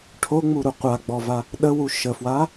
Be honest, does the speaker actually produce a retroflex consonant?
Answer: yes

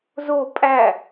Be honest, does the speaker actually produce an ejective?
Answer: yes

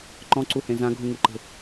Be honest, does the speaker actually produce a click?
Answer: yes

